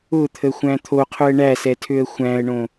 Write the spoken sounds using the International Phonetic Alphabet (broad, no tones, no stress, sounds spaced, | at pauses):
ʊ t̪ʰ ə xʷ æ̃ t̪ʰ o qʰ ʊ ə̯ ɳ æ s ɛ tʰ ø ə̯ xʷ æ̃ ə̯ ɳ õ